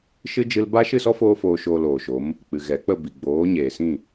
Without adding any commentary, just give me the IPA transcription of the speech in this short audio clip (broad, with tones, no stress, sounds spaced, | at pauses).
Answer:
ʃ ɨ˦ d͡ʒ ɨ˦ l b a˦ ʃ ɨ˦˨ s ɔ˦ f oː˦ f oː˧ ʃ oː˧ l oː˨ ʃ o˨˦ m | k͡p ɨ˨ ɣ ɛ˨˦ k͡p ə˦˨ b i˨ ɡ͡b oː˨˦ ɲ eː˨ s ĩ˦˨